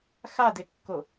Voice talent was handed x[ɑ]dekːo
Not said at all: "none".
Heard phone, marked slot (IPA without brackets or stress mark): a